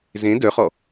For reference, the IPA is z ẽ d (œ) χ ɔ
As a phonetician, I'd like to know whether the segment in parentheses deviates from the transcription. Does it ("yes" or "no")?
no